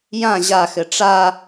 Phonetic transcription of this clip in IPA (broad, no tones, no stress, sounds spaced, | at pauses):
j ã ʑ a x ɘ ʈ͡ʂ a